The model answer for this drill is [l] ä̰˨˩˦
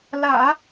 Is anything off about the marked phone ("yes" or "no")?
no